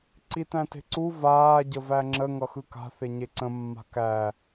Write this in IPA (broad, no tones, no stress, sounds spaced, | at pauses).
ǀ i t æ̃ t e̤ ǀ u v aː ɟ ə v æ ŋ͡ǁ ə ŋ ʌ x ɯ k a̤ θ e ɲ e ǀ ə̃ mː a̤ k æ